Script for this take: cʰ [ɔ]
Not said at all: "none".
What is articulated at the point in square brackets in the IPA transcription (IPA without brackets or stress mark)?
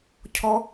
ɔ